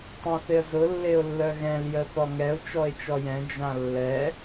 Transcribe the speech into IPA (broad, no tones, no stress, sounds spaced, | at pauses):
tˤ ɛ̃ θ ɪ ə̯ z ʊ lː e ʊ̯ lː œ ɣ ɛ̃ l j ə θ ɔ ŋ ɛ ʊ̯ t͡ʃ ɔ ɪ̯ t͡ʃ ɔ j ɛ̃ d͡ʒ ã lː ɛ